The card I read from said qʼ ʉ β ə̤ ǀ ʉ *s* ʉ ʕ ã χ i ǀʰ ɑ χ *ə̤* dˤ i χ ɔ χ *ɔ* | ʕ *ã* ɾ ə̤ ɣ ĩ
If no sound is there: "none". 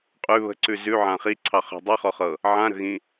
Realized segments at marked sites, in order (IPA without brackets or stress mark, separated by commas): z, ə̤, ɤ, ã